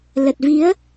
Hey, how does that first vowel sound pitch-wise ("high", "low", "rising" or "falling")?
low